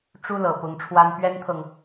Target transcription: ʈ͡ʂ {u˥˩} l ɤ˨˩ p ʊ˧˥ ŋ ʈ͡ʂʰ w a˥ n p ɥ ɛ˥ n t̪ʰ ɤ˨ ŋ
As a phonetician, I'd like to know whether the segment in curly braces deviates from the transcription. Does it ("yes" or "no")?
yes